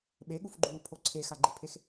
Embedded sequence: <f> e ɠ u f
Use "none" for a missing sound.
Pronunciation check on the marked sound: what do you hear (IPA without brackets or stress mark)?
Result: ɓ